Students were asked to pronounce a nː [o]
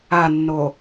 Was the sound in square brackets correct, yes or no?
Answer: yes